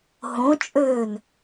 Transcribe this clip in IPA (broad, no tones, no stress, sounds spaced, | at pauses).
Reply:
ɦ õ t͡ʃʼ øː n